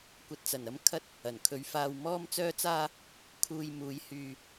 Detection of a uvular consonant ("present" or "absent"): absent